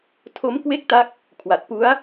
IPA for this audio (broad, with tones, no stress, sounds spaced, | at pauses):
tʰ o˦˥ m k w e˥˩ k̚ t a˦˥ k̚ | kʰ w a˨˩ t̚ p u˦˥ a̯